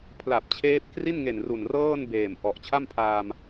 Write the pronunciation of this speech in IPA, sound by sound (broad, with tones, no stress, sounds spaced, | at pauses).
pʰ l a˨˩ p̚ t͡ɕʰ eː˦˥ p̚ k r i˥˩ n ŋ e˨˩ n r u˨˩ n r ɤː˥˩ n b eː˨˩ m ʔ ɔ˨˩ ʔ t͡ɕʰ a˥˩ m pʰ aː˧ m